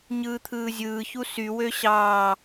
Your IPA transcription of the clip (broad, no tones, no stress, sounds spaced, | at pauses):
ɲ ɯː t̪ʰ ɯː zʲ ɯː ç u s y w ø ɕ ɑː